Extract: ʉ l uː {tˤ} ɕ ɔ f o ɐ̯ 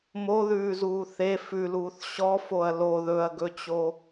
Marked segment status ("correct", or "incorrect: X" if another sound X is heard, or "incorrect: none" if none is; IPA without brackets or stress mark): incorrect: θ